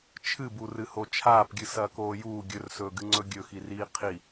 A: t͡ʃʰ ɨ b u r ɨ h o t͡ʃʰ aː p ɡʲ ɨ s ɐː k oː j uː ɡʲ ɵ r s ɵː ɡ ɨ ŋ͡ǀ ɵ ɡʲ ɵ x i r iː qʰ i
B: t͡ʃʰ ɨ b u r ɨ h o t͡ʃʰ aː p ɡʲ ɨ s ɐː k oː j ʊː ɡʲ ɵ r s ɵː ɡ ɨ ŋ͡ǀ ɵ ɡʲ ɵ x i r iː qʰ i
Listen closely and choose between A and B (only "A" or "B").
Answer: A